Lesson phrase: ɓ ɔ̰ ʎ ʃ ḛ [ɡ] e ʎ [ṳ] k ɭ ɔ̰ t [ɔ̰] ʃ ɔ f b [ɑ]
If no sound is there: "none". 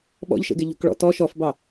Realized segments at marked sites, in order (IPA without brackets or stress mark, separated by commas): ɡ, ṳ, ɔ, ɑ